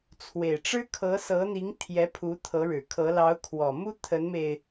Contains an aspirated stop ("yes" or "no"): yes